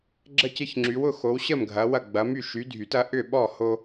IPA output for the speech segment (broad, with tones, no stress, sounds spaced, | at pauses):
ɡ͡ǁ ə˥˨ c ɪ˦ ç ŋ͡ǁ y˨˦ w ʊ˨˦ x o˨˦ w ɕ ə˥˨ m ɡʱ ɐ˨˦ w ɐ˥˨ ɡ͡b ɐ˨˦ m y˥˨ ʃ y˨˦ dʱ y˨˩˦ t ɐ˦ ʔ ʏ˥˨ ɓ ɔ˥˨ h o˦